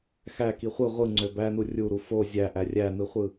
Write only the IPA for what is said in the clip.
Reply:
xæki χʷɯ ʁʷɯŋ͡ǀø bænu rʲuɾu fo zʲæʔæ rʲænɯχʷɯ

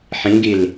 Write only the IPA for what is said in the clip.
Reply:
ħĩɡil

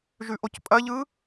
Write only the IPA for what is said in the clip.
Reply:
ʒʉʔocpʼɐʎɯ

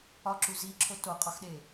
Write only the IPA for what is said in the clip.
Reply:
ɒǁu ziǁʰo toqʼɒxɗe

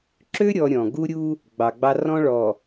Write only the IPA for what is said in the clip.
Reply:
ǁø˦ ɾʲɔ˦ɾʲɔ̃˨ ɡu˦ɾʲu˦ | ɡ͡bɑ˨ɡ͡bɑ˦ rɔ̃˦ɭɔ˨

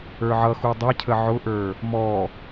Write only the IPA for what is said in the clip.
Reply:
ə˞ʕʌxu dˤʌcʰə ʕʊʔə˞ | mɔ

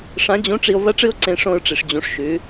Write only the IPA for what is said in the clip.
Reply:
ʂã˧˥d͡ʑũ˧˥ʈ͡ʂi˧o̯ vɐ˥ʈ͡ʂɨ˥o̯ǀẽ˧ ʂõ˧ɹʈ͡ʂi˩ʂ d͡ʑũ˩˧ʂʃʉ˩˧

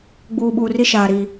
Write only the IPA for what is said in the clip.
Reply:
ɡ͡buː˨ɓuː˨ri˦ ʃaː˨ɾiː˨

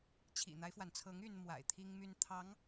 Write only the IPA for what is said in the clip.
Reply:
t͡ɕʰḭ˨˩n̪a˦ɪ̯fwa˩nt͡sʰɤ˧˥ŋ y˥n mwa̰˨˩ɪ̯t̪ʰi˥ŋmy˥n t̪ʰɑ˧˥ŋ

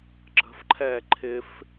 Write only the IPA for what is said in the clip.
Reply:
ǁə̤fǃʰɛː ǃʰɪf

